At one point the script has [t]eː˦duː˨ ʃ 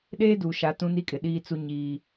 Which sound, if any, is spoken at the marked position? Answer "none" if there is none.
ɗ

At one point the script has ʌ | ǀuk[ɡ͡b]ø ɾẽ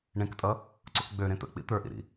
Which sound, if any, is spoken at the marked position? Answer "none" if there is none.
ɡ͡b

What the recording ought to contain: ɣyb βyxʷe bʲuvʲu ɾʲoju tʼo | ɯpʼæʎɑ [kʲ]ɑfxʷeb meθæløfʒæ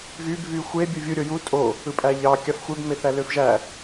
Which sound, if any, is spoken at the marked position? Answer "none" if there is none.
kʲ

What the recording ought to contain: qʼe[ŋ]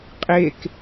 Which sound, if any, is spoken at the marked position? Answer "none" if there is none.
k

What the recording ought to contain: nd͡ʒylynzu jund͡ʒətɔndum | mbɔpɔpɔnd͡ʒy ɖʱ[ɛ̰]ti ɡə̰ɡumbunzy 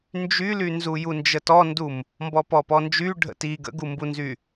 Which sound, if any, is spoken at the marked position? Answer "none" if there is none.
ə̰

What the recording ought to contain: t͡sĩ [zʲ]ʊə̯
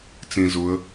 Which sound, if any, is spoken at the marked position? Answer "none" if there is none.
z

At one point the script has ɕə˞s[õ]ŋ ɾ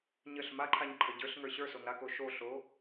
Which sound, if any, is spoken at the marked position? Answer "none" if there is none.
o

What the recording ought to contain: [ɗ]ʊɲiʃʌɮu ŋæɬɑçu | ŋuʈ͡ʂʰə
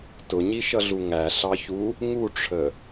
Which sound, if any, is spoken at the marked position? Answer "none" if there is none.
t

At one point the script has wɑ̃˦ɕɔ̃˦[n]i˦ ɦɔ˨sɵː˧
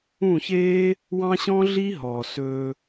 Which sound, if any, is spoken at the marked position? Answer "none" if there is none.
ɮ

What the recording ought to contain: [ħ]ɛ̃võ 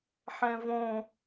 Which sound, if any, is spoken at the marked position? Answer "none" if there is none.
ħ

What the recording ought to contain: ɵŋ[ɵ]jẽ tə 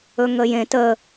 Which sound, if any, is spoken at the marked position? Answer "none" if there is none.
ə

